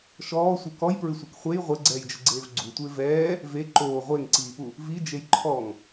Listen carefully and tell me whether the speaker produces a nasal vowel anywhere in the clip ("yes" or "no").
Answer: no